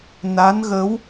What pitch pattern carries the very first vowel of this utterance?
rising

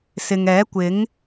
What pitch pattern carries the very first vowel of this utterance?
low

